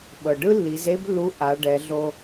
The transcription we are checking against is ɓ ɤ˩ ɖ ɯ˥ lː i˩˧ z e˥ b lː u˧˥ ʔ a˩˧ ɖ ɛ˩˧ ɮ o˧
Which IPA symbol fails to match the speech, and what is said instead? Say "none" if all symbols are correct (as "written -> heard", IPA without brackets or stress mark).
none